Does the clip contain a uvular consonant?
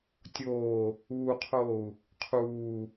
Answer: yes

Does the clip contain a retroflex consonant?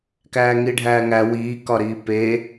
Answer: yes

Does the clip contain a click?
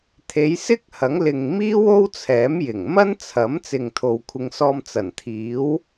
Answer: no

